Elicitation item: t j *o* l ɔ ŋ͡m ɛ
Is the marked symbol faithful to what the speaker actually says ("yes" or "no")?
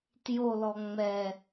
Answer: yes